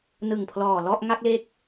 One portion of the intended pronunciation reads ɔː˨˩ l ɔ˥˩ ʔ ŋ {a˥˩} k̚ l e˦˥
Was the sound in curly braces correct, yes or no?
yes